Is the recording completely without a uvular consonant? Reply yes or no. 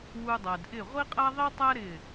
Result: no